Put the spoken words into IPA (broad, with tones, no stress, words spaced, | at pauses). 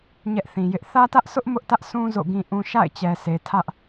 ɲɛ˦ʔθĩ˨jɪ˦ʔ θä˦tä˦ʔsʊ˦ʔ mʊ˦ʔtä˦ʔsʰũ˦ zo̰˦˨ɡĩ˦ʔũ˦ ʃa̰˦˨ɪ̯t͡ɕɛ˨se˨ tʰä˦ʔ